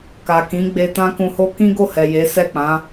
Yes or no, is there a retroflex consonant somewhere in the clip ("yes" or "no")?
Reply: no